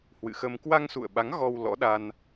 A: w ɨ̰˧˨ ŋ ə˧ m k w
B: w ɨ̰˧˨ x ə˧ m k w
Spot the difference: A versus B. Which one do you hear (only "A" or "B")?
B